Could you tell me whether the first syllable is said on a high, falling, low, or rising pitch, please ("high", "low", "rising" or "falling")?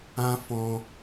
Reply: high